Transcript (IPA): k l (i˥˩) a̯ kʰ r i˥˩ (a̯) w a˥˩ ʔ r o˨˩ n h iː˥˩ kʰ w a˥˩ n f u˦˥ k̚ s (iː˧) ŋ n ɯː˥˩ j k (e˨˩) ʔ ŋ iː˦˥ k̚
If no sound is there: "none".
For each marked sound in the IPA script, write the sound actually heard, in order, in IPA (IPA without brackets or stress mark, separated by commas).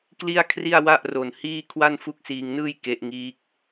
i˥˩, a̯, iː˧, e˦˥